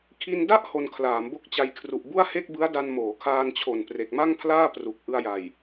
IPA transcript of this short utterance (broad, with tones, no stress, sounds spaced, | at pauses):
kʰ i˧ n d a˥˩ ʔ h o˧ n kʰ l aː˩˦ m b o˦˥ k̚ t͡ɕ a˧ j kʰ r u˨˩ ʔ b u˥˩ a̯ h e˥˩ k̚ b ɯ˦˥ a̯ d a˧ n m oː˩˦ kʰ aː˧ n t͡ɕʰ o˨˩ n p r e˨˩ k̚ m a˥˩ ŋ pʰ l aː˥˩ p r u˨˩ k̚ ʔ ɯ˧ a̯ j a˨˩ j